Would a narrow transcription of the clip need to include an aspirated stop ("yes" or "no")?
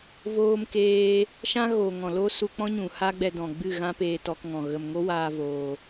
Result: no